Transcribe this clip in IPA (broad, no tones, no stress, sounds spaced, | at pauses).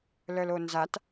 l œ l o n z a t